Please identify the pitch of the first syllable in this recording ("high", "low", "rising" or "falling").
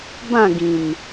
falling